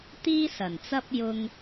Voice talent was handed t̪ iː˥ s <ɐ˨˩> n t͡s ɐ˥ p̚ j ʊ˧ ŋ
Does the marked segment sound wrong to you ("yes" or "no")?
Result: no